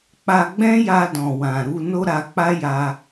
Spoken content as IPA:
k͡p a˧ ɡ͡b ɛ̃˦ j a˧ d ɔ̃˨ w ã˨ ɾ u˧ n o˦ ɾ a˧ k͡p a˦ j a˧

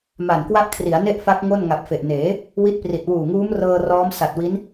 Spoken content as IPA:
m a˨˩ n k w a˥˩ ʔ kʰ r i˩˦ a̯ n e˥˩ ʔ f a˦˥ k̚ ŋ o˥˩ n ŋ a˨˩ p̚ f e˨˩ ʔ n eː˩˦ | w i˦˥ t̚ p r i˨˩ t̚ w uː˨˩ ŋ uː˦˥ m r ɤː˧ r ɔː˦˥ m s a˨˩ t̚ w i˦˥ n

